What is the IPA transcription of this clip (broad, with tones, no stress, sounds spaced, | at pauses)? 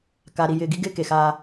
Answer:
k a˨ ɾ i˨ j ɪː˨ ɡ i˦ ɡ ɪː˦ k e˨ x aː˦